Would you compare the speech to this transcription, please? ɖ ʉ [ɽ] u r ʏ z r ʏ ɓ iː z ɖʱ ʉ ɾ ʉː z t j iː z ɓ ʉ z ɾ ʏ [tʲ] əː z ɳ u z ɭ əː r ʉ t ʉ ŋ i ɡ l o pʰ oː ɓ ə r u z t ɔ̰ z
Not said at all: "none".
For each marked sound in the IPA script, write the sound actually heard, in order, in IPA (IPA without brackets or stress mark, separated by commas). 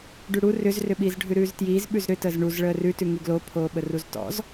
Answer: ɽ, t